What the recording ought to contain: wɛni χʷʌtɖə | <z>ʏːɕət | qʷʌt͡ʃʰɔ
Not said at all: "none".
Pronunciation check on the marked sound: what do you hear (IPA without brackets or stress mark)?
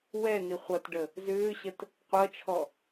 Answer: z